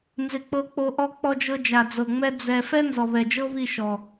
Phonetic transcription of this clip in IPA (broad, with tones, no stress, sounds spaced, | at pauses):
n z ɪ˨ k͡p ɤ˧ k͡p o˧ ʔ ɔ˧ k͡p ɔ˧ d͡ʒ ɤ˧ d͡ʒ a˨ d͡z ɤ˨ ŋ͡m ɛ˦ d͡z ɛ˧ f ɛ˦ n z ɔ˨ β ɛ˨ d͡ʒ ɤ˦ β i˦˨ ʃ ɔ˨